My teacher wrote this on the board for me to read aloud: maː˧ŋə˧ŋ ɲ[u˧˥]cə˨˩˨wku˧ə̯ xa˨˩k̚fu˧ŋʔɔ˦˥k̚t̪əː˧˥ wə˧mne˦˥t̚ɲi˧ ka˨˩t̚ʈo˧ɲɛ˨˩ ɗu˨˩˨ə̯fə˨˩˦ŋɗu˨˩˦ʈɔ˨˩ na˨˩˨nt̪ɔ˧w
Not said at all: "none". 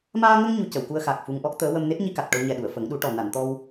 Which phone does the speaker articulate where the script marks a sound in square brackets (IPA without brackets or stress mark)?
u˧